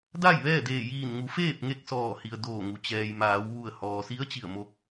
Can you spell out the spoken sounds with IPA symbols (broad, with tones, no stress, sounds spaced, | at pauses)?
d a˥˨ j ʋ ɛː˥˨ d eː˧˩ j iː˧˩ n ŋ u˩˧ f eː˥˨ p̚ ŋ e˥˨ k̚ s ɔː˧˩ h i˩ ə̯ d oː˧˩ ŋ u˩ t͡ɕ ɛː˩ j m aː˩˧ w ʋ u˧˩ ə̯ h ɔː˩ s i˧˥ ə̯ t͡ɕ i˧˩ ə̯ m o˧ k̚